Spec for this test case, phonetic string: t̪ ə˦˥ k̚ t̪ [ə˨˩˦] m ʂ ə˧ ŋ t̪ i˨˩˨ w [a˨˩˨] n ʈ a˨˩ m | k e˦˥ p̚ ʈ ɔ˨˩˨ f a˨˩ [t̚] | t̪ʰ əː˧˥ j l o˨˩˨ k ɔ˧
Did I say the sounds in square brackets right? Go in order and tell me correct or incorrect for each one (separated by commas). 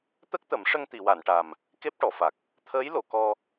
correct, correct, incorrect